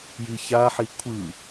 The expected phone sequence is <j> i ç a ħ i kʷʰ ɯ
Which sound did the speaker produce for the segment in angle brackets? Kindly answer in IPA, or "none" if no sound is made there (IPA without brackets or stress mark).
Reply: j